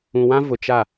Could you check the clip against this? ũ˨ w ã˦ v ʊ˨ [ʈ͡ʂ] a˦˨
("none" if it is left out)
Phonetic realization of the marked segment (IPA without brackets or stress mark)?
t͡ʃ